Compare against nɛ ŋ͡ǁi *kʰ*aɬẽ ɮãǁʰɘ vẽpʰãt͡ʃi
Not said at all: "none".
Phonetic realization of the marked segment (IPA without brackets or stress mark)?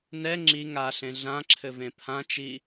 ŋ